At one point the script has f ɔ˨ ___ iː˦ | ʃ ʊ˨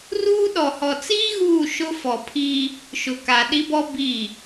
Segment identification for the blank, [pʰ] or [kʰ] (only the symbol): pʰ